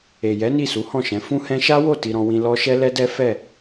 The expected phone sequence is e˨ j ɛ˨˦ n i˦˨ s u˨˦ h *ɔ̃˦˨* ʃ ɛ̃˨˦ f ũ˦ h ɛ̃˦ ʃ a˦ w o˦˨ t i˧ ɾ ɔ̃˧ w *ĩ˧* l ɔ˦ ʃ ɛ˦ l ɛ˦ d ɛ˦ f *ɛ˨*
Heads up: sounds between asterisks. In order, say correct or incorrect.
correct, correct, incorrect: ɛ˦˨

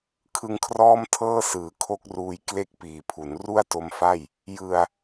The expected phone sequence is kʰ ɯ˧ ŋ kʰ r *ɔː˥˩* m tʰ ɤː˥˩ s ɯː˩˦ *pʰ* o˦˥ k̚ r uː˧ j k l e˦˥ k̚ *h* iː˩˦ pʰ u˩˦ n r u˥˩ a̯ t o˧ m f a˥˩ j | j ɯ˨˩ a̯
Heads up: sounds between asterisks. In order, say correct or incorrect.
correct, incorrect: kʰ, incorrect: p

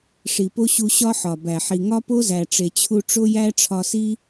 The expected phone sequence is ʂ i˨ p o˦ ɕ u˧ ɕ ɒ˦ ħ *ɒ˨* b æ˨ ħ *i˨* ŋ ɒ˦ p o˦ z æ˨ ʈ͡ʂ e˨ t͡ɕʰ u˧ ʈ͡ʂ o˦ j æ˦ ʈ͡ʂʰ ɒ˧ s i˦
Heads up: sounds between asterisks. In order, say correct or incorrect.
correct, correct

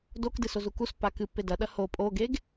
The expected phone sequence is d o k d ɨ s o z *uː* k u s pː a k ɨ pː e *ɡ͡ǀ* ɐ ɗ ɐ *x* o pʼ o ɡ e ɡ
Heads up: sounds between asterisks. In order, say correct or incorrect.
incorrect: u, incorrect: d, incorrect: h

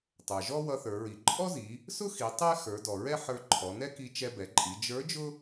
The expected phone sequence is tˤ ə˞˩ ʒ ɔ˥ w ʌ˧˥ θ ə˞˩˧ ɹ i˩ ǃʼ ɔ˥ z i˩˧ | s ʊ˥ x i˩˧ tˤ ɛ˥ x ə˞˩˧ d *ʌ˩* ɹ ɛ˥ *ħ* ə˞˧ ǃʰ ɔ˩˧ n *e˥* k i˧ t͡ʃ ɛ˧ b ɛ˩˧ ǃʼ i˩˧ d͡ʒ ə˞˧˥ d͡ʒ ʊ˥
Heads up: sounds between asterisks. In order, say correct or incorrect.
incorrect: ɔ˩, correct, incorrect: ɛ˥

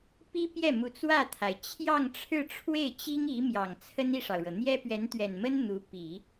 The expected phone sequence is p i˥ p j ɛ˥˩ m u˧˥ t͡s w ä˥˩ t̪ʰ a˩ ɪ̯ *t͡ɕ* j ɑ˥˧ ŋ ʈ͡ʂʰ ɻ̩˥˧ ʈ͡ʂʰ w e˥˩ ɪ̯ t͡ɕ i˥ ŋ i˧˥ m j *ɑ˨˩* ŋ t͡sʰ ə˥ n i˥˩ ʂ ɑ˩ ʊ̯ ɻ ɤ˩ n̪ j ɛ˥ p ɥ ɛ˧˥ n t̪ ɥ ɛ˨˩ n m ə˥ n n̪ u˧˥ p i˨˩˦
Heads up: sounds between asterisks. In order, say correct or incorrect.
incorrect: t͡ɕʰ, correct

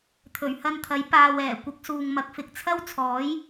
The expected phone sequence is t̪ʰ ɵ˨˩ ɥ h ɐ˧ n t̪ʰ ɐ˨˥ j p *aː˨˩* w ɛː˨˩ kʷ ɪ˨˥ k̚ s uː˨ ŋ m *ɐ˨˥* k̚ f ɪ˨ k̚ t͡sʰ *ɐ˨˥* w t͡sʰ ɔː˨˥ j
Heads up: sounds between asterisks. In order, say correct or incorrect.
incorrect: aː˨, correct, incorrect: ɐ˥

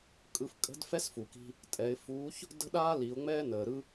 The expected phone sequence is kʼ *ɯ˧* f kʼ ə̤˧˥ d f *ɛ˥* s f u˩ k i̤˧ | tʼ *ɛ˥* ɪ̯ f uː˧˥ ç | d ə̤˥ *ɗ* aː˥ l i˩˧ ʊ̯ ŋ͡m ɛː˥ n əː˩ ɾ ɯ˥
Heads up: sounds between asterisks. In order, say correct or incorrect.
correct, correct, incorrect: ɛ˩˧, correct

